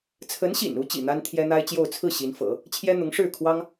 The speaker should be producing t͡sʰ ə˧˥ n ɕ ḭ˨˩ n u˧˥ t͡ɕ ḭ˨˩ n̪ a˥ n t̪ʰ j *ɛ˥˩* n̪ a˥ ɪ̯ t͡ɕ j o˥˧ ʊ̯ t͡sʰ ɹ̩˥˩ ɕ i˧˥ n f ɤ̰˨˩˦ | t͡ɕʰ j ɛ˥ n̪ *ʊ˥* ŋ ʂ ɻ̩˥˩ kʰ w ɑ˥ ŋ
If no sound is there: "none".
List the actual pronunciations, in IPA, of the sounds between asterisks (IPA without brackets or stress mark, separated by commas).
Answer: ɛ˥, ʊ˧˥